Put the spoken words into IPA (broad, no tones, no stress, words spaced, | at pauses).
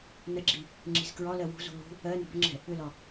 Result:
nəɡ͡ǁi | ŋ͡ǁi̤zkɹɒlɜ wṳzṳ lṳ | ɜ nə̤bʏŋ͡ǁɛ̤ | ʏlɒ